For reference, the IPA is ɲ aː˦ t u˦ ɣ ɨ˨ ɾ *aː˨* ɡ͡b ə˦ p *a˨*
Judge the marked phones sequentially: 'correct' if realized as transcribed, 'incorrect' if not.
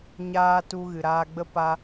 incorrect: aː˧, incorrect: a˦

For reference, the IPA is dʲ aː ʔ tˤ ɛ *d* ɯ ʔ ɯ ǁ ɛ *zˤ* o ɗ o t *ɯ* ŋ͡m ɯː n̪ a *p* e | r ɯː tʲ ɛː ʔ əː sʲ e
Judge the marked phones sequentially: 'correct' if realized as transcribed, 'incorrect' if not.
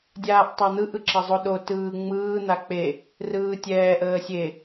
incorrect: n̪, correct, incorrect: ɯː, incorrect: k͡p

